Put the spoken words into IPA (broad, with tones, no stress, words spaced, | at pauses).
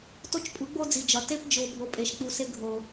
to˦t͡ʃpʼu˨˦ɡ͡bo˦d͡zi˨ d͡ʒɒ˨te˦p d͡ʒo˨ bʱo˨pʼe˨ʃk͡pu˨ se˧ɡʱo˨